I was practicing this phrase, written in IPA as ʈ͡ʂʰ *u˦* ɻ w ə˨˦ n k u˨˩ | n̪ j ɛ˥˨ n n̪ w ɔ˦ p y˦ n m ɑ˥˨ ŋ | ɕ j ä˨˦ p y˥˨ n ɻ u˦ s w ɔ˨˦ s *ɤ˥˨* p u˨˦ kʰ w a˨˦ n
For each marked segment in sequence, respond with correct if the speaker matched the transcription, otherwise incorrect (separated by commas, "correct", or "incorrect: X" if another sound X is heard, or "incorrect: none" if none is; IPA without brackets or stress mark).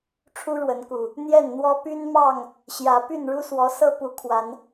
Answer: correct, correct